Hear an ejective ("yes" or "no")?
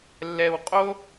yes